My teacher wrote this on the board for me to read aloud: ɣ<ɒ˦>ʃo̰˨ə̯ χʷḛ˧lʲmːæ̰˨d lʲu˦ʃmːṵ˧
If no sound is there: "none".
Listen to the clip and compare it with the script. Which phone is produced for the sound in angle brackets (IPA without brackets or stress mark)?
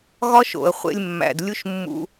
ɒ˦